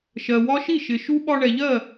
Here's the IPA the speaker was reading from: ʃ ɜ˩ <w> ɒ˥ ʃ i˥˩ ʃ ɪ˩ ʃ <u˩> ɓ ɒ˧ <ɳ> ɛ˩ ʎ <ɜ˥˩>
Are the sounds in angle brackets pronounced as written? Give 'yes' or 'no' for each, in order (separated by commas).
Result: yes, no, yes, yes